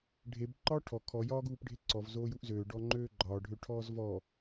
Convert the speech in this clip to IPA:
ɖʱ e b ǃ ɒː ʈʰ ɔ kʰ ɔ j ɒː ɡ uː p ɖʱ e ǀ ɔ v z oː j u ʔ z øː ɖ ɔ ŋ͡ǃ øː ɡ͡ǃ ɒː ɖʱ ø ʈʰ ɔː z v ɔ

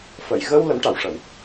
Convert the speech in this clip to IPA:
f ə˨˩˨ j ɣ ə˧ w l ə˧˥ m ʈ a˨˩˨ w ʂ ə˨˩˦ w

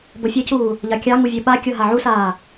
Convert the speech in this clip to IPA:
b ɤ fʲ ɘ c uː | ʎ ɑ kʲ ɑ ŋ u vʲ ɘ ɓ a kʲ ɤ ɦ a ʕ u s aː

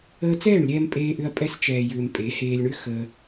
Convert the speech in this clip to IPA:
əː˧ t͡s ɛː˦˨ ɳ lʲ ɛː˧ m pʼ eː˧ ʔ ʏ˧ ɐ̯ pʼ ɛ˧ s t͡ʃ ɛː˨ j ʏː˨ m pʼ e˨˦ h eː˧ lʲ ɳ ʏ˦ x ə˦

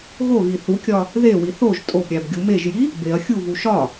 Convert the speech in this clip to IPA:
ɣ o ɣ i θ u kʲ ɒ | ð e w i θ o ʒ tʼ o b ɾʲ æ b ɡʲ u m e ʒ j i | b e ɐ̯ xʲ u v u ʃ ɒ

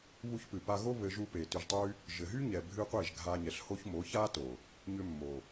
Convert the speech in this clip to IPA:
β u˧ ç p ɨ˨ p a˧ ɣ o˦ β ɘ˧ ʒ u˧ p e˨ t ʏ˧ ʒ tˤ y˦ | ʒ ɘ˨ ɦ y˦ ɲ ɛ˨ bʱ ɨ˦ qʷ e˦˨ ʒ ɡʱ a˧ ɲ ɛ˨ ɬ h o˦ ç m o˨˦ ç a˦ t o˨ | ɲ ʏ˦ mː o˨

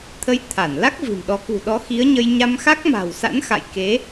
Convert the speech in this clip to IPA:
t̪ʰ ə˧ j t̪ʰ a˧˩ n l a˦˥ k̚ v ɨ̤˨˩ m ɗ ɔ˨˦ k ṳ˨˩ ɗ ɔ˨˦ x i˨˦ ə̯ ɲ ə˧ j ɲ a˧ m x a˦˥ k̚ m a̤˨˩ w s a̰˧˥ n x a̰˧˨ j k e˨˦

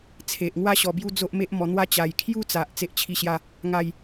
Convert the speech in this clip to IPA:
t͡sʰ e˨ ʔ ŋ w a˦ ɕ ɔ˧ b j u˦ d͡z o˦ ʔ m e˦ ʔ m ɔ˧ n̪ w a˦ t͡ɕ a˨˩ j kʰ j u˥˧ t͡s a˨ ʔ t͡s e˦ ʔ t͡ɕʰ i˥˧ ɕ j a˥˧ | ŋ a˥˧ j

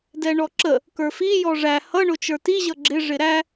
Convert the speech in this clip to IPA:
d ɛ ɳ ɔ ǁ ə | k ə˞ f i j ɔ ʐ æ h ʌ ɳ ʊ t͡ʃ ə˞ t i ʑ ʌ ɡ͡ǁ ɪ ʐ ɪ ɾ æ

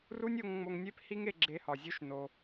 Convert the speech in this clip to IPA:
r u˦ nʲ o˧ ŋ ŋ͡m o˧ ŋ nʲ e˦ p h i˦ ŋ e˧ ɡ͡ǁ e˧ h ɒ˨ zʲ u˦ ʃ n o˧

